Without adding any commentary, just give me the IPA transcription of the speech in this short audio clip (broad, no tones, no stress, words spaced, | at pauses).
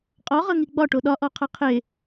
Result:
qʼɔʁɤŋi ɡ͡bɒʈo ɗɒʔɔqʰɤ qʰe